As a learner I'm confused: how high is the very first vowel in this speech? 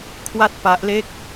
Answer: low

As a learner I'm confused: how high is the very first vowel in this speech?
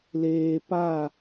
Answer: mid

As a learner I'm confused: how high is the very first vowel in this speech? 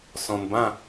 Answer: mid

